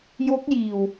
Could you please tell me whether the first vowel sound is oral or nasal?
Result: oral